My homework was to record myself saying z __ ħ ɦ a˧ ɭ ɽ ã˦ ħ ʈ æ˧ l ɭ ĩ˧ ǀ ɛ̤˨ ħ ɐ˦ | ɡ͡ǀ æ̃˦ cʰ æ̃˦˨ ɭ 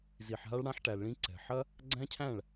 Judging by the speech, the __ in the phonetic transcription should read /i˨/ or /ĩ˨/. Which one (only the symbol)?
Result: i˨